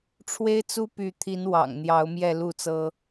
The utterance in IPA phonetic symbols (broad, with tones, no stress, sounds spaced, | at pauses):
ʈ͡ʂʰ w e˦ ɪ̯ t͡s u˦ p y˨˦ t̪ʰ i˨˦ n w ɑ̰˨˩ ŋ n̪ j ɑ˨˦ ʊ̯ m j ɛ˥˨ l u˥˨ t͡s ɤ˦